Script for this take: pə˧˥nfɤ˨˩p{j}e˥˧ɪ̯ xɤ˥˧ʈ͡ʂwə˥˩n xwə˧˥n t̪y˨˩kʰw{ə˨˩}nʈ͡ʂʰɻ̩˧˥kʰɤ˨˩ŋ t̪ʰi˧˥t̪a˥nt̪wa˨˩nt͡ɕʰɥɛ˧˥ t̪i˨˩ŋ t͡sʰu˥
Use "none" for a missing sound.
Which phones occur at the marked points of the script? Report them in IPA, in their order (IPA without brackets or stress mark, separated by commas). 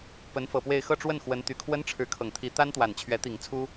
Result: w, ə˥